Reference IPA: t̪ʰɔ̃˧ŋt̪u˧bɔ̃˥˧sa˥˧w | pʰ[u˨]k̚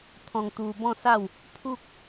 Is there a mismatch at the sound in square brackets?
yes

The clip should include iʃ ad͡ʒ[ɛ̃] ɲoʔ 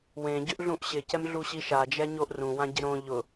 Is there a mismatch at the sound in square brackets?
yes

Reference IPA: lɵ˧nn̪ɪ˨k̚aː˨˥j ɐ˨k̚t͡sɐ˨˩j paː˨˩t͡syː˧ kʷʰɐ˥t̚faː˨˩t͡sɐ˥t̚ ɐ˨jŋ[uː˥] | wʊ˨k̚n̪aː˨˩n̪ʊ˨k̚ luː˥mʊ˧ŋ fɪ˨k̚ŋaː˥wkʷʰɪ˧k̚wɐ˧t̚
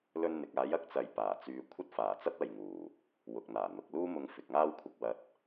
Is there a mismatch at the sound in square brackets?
yes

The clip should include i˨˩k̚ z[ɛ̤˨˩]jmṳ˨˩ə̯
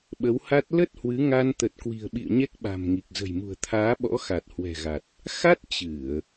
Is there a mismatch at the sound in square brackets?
yes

